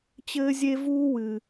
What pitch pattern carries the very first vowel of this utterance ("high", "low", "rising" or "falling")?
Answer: high